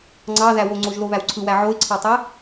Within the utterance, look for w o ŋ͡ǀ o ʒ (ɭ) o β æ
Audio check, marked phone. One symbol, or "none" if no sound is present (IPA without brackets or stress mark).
l